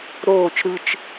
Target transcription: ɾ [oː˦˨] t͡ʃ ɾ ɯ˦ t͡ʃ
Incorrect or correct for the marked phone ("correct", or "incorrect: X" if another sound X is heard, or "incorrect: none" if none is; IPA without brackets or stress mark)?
correct